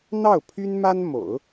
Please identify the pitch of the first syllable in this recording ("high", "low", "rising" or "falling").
falling